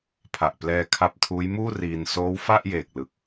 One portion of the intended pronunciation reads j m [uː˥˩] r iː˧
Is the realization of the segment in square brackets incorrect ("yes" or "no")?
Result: no